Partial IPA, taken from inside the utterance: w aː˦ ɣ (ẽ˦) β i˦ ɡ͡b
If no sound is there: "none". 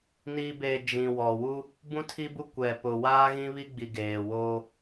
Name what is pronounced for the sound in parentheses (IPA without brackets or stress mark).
ĩ˦